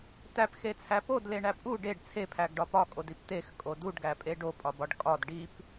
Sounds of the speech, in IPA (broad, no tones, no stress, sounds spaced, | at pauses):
t æ p x e t͡sʰ æ p o d l e ɳ æ pʼ u ɖ e ɖ t͡sʰ e pʰ æ ɡ ɖ ɒ p ɒ kʼ o d i p t̪ e x kʼ o d u ɖ ɡ æ pʼ e ɖ o pʼ ɒ b ɒ ɖ kʼ ɒ d ɖ i p